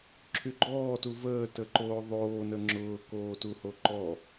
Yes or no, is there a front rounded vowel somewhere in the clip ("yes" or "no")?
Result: yes